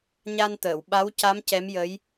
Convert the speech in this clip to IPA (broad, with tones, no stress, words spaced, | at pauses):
ɲa˧nt̪əː˨˩˨w ɓa˧˥wca˧˥m cɛ˧˥mjə˧˥j